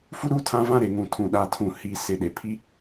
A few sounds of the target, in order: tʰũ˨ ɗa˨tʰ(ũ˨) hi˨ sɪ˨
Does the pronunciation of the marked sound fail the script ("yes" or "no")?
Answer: no